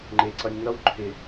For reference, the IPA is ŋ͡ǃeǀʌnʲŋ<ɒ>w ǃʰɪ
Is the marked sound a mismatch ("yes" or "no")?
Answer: yes